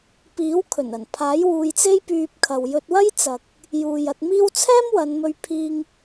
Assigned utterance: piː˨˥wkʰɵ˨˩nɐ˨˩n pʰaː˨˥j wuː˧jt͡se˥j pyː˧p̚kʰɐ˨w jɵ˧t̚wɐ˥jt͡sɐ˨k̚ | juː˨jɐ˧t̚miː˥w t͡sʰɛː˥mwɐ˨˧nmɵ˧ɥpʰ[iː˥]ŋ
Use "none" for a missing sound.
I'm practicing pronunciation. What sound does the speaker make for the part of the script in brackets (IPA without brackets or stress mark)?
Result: iː˧